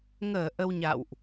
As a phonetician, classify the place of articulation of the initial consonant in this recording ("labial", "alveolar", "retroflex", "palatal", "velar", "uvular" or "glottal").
velar